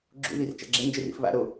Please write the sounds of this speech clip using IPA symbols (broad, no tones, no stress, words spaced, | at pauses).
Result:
ɡ͡ǁṵ ðir t͡ʃa̰ɡ͡ǁend͡ʒerḭf βa̰ ɾo